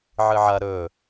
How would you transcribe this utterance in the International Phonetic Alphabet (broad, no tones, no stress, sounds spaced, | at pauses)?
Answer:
ʕ ɨ ʕ ɐ ɾ ɵ